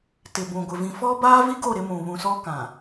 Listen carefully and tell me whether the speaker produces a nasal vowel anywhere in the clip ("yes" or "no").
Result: yes